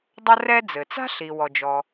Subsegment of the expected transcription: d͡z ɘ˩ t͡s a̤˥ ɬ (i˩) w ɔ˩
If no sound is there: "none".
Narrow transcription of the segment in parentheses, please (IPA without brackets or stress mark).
i˩